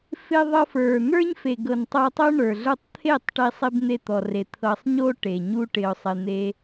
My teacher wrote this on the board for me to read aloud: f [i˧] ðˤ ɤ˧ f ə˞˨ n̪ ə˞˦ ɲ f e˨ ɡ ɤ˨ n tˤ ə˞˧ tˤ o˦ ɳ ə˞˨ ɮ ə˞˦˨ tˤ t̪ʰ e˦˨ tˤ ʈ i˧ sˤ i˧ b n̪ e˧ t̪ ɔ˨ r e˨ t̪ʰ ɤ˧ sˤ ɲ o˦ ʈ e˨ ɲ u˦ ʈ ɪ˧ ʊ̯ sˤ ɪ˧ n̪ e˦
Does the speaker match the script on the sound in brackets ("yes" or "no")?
no